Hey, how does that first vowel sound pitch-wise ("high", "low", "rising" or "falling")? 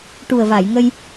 low